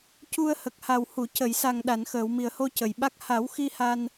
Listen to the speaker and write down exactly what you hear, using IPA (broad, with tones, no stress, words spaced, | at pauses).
cu˧ə̯ hə˨˩k̚ha˨˩whu˨˩˨ cə˨˩˨jsa˨˩ŋ ɗa˨˩˨nxəː˨˩˨wmi˨˩ə̯ho˧ cə˨˩jɓa˦˥k̚ ha˨˩˦wxi˧ ha˧n